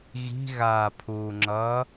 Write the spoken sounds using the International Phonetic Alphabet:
ɣ i̤ ɣ aː pʰ uː ŋ͡ǁ ʌː

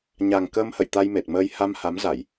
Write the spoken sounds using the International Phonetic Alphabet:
ɲ a˨˩ ŋ k əː˧ m h ə̰˧˨ j t̪ a˧ j m e˨˩ t̚ m əː˧ j h a˧ m h a˨˦ m z a˧˩˨ j

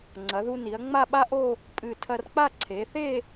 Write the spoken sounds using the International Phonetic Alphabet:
ŋ͡ǀ ɐ˩˧ ð u˧ n i˩˧ ɐ̯ ŋ͡m a˥˧ ɓ a˥ ʔ o˥˧ | pʼ ɨ˧˩ tʰ ɐ˧ r k͡p a˥˧ ǀʰ e˩˧ θ e˥˧

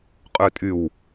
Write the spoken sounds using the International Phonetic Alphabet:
qʼ ø tʼ y w

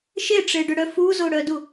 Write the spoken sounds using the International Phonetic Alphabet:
ʃ e ʈ͡ʂ e ɖ ʏ ɽ œ f u z o ɽ œ d u

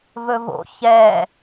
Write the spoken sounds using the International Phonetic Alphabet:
v ɵ v o̰ ç ɛ

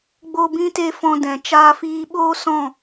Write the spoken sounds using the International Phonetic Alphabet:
ɡ͡b o˦ b ĩ˦ t e˦ f ɔ̃˧ d ɛ̃˨ t͡ʃ aː˧ f iː˧ ɓ oː˦ s ɔ̃˦˨

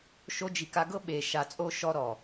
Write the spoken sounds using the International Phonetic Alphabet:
ʃ o˧ d͡ʒ i˨ k a˧ ɡ ɤ˦ ɓ e˨ ʃ a˨ t͡sʼ o˧ ʃ ɔ˧ ɾ ɔ˨

